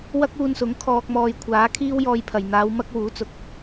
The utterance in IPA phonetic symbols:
wɐ˥k̚uː˧nsʊ˨˥ŋ kʰɔː˧k̚mɔː˧j kʷʰaː˨˥ kʰiː˥wjɔː˧jpʰɐ˨j n̪aː˨˧w mɐ˥k̚wuː˨˥t͡sʊ˨k̚

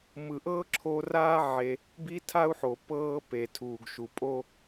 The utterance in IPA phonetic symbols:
mɯ˨ʔɤː˦ǁʰo˧raː˦ ʕe˧ | bi˦tʰa˦u̯ħo˨ pɤː˦ pe˨tʰuː˨ɡʃu˨pʼo˦

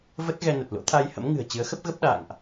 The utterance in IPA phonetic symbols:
və˦˥t̚ɣɛ˧nə˨˩t̚ lo̰˧˥t̪ʰa˧jhə̰˧˥mŋɨ̤˨˩ə̯ t͡ɕɨ˨˦ə̯xə˦˥p̚ɣə˦˥p̚ ɗa̰ː˧˨ŋʔ

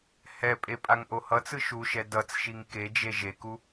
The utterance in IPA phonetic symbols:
hɛpʼe pʼaŋʔohʌt͡sɯ ʃuʃɛ dʌt͡sʃiŋ ked͡ʒe ʒeku

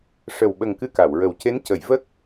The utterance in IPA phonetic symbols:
ʂə˨˩wɓə˨˩ŋ kɨ˧ka˨˩˨wɹə˨˩wce˧˥n cə˨˩˨j və˦˥k̚

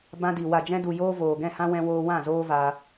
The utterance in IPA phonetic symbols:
bã˧di˨ wa˨d͡ʒɛ̃˧du˨ joː˦voː˨ ɡɛ̃˦˨hã˦ wɛ̃˧ woː˧wã˦˨ zoː˦vaː˧

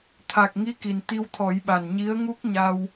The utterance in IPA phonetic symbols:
t̪ʰa˨˩k̚ŋi˧˥ ki˨˩n t̪i˧wt̪ʰɔ˨˩˦jɓa˨˩n ɲi˧˥ə̯ŋu˦˥k̚ɲa˧w

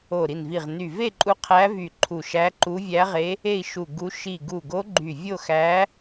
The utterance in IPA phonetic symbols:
o˧˩ɾi˧˩nvi˧˩ʁny˧˩ ve˥˧ǃʼu˧˥ qʰæ˧˥vy˧˩ ǃʰu˧˩ʃæ˧˥ǃu˧˥ vʲæ˧˥ʁe˧˥ | e˥˧i̯ʃu˧˩ɡu˧˥ ʃi˧˩ɡu˧˩ɡo˧˥ ɡ͡ǃy˧˩vʲo˥˧xæ˧˥

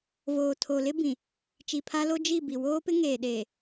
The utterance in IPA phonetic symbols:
voː˨tʰo˨lɪ˦ bĩ˨ | t͡ʃi˨pʰa˦lo˦ d͡ʒi˦˨ bi˨ woː˦pɪ˦ ŋeː˨ɗeː˨

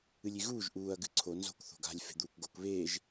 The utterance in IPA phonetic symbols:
ɨlʲiɣuːʒ ʔuːɐ̯ ɡɨǀʰo nzo̤k θo̤ɡa̤lʲ fe̤d̪uːkɡok βeːʒ

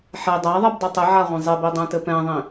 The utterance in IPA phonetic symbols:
ħɛ dˤaðˤɛbdˤɛ tˤɘʕaʁʷɛ̃ zˤibidˤɛ̃tɘ pɛ̃ðˤĩ

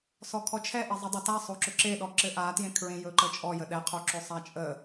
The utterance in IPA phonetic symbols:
sɔkʰɔt͡ʃʰɛʔe zˤɘdˤʏta sˤoǁɵǁeɗɔ ǁɘʔatjẽ kʰɹẽjɵǃət͡ʃʼɔ jəɗɛqʰoǁɵ sˤat͡ʃʼə

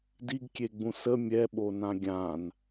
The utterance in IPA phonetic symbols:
diɡkʲeɡ͡bũ sə mʲɛɓonã ɡʲãn

